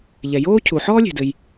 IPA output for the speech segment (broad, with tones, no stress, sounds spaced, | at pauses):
ʎ ɛ˩ j oː˥ cʰ u˩ ħ ɔː˥ lʲ e̤˩ d ɘ˩ j